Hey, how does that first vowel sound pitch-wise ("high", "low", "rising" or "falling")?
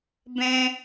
high